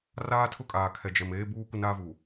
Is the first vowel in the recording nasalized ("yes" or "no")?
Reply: no